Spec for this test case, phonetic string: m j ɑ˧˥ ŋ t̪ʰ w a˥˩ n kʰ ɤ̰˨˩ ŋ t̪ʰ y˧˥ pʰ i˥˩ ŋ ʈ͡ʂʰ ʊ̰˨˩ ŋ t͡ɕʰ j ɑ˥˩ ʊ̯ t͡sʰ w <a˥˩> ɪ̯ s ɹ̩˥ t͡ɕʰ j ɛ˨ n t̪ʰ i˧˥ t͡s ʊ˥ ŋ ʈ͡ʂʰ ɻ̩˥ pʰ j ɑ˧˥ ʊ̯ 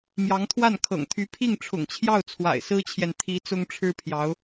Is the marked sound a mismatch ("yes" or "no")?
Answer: yes